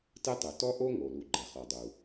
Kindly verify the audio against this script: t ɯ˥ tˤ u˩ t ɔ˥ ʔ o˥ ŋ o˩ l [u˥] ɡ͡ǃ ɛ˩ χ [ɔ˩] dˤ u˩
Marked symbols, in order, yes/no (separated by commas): no, yes